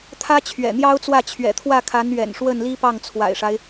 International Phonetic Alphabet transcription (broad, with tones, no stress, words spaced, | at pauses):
t̪ʰä˥t͡ɕʰɥɛ̰˨˩n̪jɑ˥ʊ̯t͡swä˥˩ t͡ɕʰɥɛ̰˨˩t̪ʰwä˥˩kʰa˧˥n ɥɛ̰˨˩n ʂwə˥˩nli˥pɑ˥˩ŋ t͡sʰwa̰˨˩ɪ̯ʂa˦ɪ̯